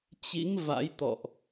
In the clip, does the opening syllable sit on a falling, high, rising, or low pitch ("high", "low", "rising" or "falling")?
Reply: rising